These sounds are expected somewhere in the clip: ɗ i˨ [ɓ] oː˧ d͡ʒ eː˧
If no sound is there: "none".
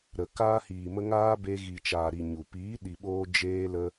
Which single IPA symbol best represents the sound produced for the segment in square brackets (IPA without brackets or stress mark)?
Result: ɓ